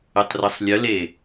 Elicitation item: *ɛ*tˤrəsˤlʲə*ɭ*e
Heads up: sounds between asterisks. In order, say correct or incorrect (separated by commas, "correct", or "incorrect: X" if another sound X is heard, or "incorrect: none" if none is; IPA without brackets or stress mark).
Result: incorrect: ə, incorrect: l